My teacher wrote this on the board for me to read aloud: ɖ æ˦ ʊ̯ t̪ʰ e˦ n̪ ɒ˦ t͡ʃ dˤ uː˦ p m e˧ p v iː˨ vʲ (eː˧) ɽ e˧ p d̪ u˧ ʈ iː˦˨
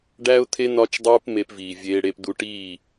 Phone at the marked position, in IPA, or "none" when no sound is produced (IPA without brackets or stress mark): eː˧